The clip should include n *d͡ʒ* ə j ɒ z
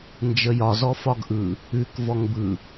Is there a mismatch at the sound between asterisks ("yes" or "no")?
no